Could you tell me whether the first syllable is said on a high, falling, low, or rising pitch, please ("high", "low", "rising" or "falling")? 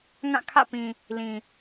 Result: falling